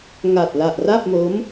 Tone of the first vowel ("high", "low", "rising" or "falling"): low